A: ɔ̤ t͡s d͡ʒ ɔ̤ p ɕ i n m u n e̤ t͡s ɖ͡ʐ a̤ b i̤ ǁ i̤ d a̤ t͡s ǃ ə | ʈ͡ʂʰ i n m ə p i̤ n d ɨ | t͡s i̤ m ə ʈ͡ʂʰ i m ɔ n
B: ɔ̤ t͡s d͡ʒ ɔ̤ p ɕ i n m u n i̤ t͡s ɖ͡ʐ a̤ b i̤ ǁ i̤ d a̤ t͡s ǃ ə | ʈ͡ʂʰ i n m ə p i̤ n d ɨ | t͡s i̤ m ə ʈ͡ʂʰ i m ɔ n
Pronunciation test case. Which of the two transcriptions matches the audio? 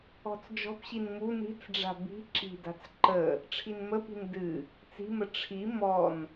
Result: B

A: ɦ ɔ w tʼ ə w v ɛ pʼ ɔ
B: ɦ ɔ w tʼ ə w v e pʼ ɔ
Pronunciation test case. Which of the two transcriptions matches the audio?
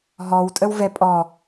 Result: A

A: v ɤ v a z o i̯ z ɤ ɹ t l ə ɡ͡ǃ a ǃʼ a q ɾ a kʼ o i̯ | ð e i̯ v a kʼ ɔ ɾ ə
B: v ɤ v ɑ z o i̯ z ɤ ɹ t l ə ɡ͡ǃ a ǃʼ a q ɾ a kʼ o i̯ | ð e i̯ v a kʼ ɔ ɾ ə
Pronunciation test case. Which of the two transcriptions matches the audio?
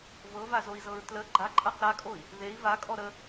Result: A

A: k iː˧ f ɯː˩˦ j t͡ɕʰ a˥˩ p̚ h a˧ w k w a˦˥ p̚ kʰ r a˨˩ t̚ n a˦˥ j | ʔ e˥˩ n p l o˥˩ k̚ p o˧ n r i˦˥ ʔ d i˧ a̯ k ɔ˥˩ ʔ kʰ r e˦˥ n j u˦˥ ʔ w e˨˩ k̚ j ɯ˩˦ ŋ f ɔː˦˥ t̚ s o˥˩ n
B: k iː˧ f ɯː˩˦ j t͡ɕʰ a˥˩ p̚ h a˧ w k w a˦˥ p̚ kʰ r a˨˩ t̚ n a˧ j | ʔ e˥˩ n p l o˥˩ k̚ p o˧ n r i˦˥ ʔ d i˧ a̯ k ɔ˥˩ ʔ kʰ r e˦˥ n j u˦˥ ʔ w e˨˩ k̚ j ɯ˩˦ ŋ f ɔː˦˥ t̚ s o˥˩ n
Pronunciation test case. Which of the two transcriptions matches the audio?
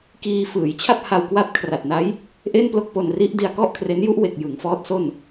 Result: A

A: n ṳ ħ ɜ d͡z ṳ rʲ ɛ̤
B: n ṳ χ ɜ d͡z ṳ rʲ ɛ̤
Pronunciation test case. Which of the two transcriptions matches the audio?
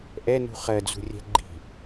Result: B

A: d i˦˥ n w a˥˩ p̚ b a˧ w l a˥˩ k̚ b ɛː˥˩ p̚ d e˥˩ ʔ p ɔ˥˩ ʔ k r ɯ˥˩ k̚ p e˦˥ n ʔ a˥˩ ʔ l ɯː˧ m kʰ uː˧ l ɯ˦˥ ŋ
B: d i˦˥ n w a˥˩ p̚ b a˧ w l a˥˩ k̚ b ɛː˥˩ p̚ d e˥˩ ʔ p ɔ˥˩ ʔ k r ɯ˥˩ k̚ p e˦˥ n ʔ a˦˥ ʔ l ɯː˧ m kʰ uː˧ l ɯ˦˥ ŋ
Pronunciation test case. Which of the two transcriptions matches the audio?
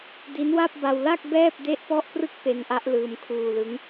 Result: B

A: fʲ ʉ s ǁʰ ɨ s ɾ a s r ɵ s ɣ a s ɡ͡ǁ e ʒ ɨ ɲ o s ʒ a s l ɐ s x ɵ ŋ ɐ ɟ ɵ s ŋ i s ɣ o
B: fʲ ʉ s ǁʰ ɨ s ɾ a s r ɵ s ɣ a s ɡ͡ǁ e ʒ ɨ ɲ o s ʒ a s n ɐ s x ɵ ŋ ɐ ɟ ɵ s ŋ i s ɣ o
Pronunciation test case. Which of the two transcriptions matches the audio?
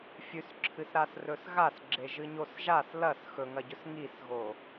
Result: A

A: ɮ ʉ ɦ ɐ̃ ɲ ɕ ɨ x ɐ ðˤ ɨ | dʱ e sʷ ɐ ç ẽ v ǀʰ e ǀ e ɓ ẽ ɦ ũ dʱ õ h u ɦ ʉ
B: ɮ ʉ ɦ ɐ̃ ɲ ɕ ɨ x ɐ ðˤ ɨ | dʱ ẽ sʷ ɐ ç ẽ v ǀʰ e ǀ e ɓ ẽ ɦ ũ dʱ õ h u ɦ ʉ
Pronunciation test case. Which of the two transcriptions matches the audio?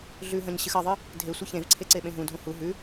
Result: A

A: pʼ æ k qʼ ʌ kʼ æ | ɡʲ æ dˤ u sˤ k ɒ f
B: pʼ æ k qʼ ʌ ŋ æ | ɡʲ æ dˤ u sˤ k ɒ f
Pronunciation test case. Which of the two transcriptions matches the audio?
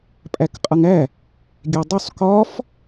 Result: B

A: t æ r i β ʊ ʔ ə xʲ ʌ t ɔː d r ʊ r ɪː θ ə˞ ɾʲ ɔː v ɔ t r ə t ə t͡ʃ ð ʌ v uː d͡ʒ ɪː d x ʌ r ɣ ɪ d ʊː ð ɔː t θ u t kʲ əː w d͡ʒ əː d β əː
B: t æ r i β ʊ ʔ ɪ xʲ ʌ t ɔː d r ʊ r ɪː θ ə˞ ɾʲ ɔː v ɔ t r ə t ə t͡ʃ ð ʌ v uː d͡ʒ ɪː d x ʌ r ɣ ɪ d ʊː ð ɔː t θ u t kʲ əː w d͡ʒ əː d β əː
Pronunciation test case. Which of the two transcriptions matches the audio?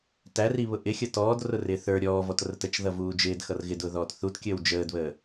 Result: B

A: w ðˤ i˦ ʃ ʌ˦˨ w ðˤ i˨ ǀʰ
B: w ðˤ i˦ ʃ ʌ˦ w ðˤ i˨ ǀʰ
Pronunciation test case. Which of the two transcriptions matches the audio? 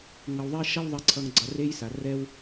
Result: B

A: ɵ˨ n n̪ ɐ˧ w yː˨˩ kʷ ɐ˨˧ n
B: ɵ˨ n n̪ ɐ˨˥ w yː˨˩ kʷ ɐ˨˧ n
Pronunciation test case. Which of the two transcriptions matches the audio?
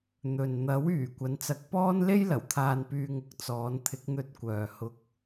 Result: B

